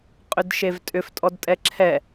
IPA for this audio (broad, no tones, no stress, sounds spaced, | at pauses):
qʼ ʏ d ʃ e v tʼ ʏ f tʼ ɔ d tʼ ɛ ǁʰ ɛ